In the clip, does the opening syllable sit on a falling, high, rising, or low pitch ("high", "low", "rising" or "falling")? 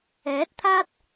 rising